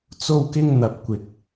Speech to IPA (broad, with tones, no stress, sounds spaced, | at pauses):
t͡s o˧ w k ɪ˧ ŋ n̪ ɐ˨ p̚ kʷ ɪ˨ k̚